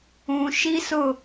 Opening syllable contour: low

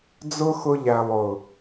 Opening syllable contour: high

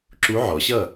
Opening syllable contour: rising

